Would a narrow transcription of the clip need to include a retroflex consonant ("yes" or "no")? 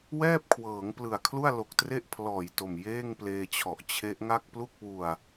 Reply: no